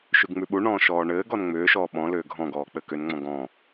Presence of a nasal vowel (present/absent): present